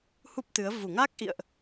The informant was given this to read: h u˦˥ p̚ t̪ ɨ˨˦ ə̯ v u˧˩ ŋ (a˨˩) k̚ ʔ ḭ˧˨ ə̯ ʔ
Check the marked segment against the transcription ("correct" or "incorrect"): incorrect